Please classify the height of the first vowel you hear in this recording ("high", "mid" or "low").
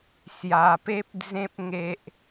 low